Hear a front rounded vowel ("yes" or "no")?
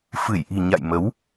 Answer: no